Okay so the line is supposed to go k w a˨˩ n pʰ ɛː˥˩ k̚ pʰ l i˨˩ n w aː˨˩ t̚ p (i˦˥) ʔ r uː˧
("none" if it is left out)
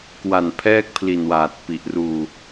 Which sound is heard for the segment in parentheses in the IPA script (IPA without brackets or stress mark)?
i˨˩